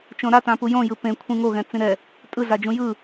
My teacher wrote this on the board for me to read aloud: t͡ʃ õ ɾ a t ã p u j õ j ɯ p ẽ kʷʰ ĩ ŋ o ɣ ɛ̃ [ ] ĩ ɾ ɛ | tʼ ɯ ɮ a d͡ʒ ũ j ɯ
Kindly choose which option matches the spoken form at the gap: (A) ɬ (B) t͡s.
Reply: B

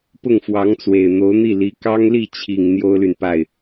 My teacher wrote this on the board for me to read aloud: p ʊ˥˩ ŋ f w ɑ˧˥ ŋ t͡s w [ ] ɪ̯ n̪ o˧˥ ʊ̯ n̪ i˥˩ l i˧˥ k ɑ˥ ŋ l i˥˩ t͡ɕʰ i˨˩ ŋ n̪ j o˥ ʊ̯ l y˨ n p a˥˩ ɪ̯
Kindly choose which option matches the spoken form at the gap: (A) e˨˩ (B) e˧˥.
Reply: A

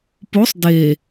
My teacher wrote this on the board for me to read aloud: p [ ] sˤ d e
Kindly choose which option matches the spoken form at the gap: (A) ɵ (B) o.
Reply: B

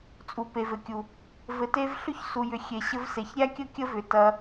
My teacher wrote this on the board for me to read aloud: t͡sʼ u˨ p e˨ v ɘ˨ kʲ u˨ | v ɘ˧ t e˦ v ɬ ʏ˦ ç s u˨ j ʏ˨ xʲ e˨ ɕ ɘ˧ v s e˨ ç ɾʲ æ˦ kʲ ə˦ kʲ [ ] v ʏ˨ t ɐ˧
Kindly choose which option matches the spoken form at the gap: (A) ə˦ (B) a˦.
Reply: A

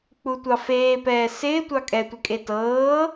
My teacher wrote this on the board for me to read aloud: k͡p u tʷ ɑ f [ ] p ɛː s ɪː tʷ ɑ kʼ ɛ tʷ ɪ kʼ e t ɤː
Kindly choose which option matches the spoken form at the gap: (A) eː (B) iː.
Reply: A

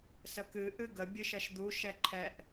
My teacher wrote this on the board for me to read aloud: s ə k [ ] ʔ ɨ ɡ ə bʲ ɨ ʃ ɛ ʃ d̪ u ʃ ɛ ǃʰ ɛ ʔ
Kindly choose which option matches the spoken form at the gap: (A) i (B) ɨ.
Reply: B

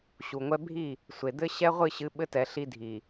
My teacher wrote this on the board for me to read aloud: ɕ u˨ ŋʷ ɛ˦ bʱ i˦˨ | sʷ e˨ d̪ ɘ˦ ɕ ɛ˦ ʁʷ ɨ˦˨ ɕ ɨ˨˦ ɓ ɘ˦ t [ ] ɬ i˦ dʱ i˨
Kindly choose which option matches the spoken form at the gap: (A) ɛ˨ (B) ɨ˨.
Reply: A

